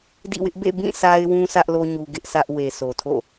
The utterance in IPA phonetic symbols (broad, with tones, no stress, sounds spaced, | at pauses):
d ḭ˦˨ w ɪ˦ ʔ b ḛ˦˨ b ĩ˦˨ sʰ a˦ ɪ̯ w ũ˦ s ä˦ ʔ l o˦ ɲ u˦ ɡ ɪ˦ ʔ sʰ ä˦ ʔ w e˨ sʰ o˨ tʰ o̰˦˨